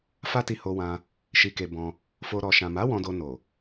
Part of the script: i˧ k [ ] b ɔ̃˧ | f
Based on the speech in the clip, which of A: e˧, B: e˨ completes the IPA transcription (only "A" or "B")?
A